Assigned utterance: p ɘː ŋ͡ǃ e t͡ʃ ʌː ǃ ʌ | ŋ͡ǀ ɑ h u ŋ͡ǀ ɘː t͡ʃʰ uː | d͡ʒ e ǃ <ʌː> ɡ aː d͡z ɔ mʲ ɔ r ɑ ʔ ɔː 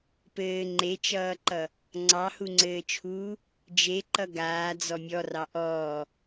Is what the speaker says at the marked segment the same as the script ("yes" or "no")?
no